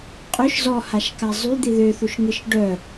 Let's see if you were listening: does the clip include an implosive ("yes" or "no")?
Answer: no